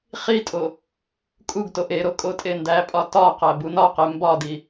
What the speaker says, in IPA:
χ i tʼ o | kʼ u ɡ t o ʔ e ɾ o kʼ o tʼ e n d æ pʼ ɒ t ɒ q æ b u n ɒ q e m b ɒ d i

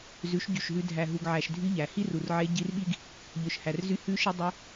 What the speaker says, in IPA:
z ʉ˨˦ ʃ ɟ y˨ ʃ ɦ ʉ˧ dʱ æ˨ ɦ u˨ ɡ ʕ æ˨ ʃ dʱ y˧ ʎ æ˨ h i˦ r u˨ r ʕ e˧ ɟ i˧ r ɓ i˦ ɡ | ʎ ɵ˨ ʃ h æ˨ r z y˧ h ʉ˧ ʃ i˧ dˤ u˧

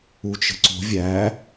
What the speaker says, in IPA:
u t͡ʃ ə̤ ǀ o̤ vʲ æ

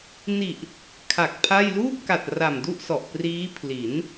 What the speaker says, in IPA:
n i˨˩ ʔ | kʰ a˨˩ k̚ pʰ a˥˩ j l uː˥˩ p̚ k a˨˩ t̚ r a˨˩ m d u˥˩ ʔ s ɔ˨˩ ʔ p r iː˦˥ pʰ l i˩˦ n

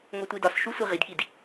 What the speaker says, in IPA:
ŋ o tʷ i d ɒ s ʃ u sʷ i ʁ i d k i d

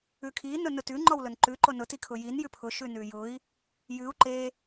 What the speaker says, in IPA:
ʉ kʰ i n ʊ n ʊ t ʉ ŋ͡ǃ ɔ w l ʊ n ǃ ʉ ǃ o n ʊ t i kʰ ʊ j i n j ʉ pʰ ʊ ʃ ʉ n ʉ j ʊ i̯ | j ʉ u̯ ǃ e

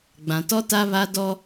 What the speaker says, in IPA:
ɡ͡b ã˨ t ɔ˦ t a˦ β a˦ d ɔ˦

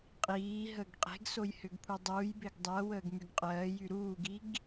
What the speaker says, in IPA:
qʼ iː ɦ əː ɡ qʼ e̤ ɡ s o j h ʏ ɡ pʰ u dˤ uː j b e ɡ dˤ ɜ w əː ɡ m y ɡ qʼ ɜː j y ɾ uː ɡ i ɡ

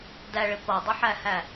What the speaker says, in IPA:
d æ ɭ ɪ p ʌ dˤ ʌ ħ æ h æ

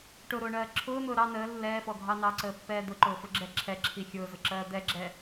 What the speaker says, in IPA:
ʈ ʊ ɾ ʊː ɳ ɜː ǁʰ ʊː n̪ ʊː ɾ ɑ n əː lː ɛː f ɔ ɡʱ ɑ n ɑ ǀ əː pː ɛː d̪ ʊ ǃ ʊː f ʊ ɡ͡ǁ ɛ ǁʰ ɛ ǁʰ i xʲ ʊː z ʊ ǁ ɜː d̪ ɛ ɡ͡ǁ ɛ

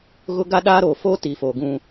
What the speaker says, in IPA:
ɣ ʊ˦ ɡ a˦ ɗ aː˦ ɾ oː˨ f oː˦ t i˨ f oː˨ ɡ ũ˦

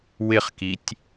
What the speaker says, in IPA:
w ɪ χ k i tʲ

